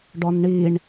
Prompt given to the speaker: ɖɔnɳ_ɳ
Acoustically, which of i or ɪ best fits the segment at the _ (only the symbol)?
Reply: i